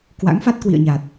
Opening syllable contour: rising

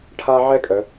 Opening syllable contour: high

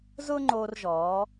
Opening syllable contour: high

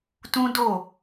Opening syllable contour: high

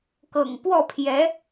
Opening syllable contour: low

